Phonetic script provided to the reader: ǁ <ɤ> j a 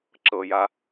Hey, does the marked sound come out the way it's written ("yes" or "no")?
yes